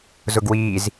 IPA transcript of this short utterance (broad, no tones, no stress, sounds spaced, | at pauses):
z ʊ ɡ w iː z